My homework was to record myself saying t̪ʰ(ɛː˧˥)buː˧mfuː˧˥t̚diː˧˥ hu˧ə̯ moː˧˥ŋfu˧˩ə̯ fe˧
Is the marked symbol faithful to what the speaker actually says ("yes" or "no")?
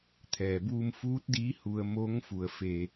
no